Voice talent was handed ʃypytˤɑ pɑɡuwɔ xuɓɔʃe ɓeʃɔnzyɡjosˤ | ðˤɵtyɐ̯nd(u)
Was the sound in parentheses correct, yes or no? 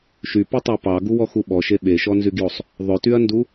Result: yes